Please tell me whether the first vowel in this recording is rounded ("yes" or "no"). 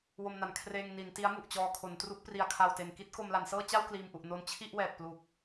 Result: yes